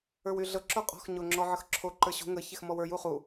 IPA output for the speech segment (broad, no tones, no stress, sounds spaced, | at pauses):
ə˞ w y ɮ ɤ ǁ o qʼ ɔ̤ x ɲ o ŋ͡ǁ ɔ ʕ ə x ǁʰ o ǃ ə˞ ɕ ṳ ŋ ə ç e x m ɔ w ə˞ j u χ u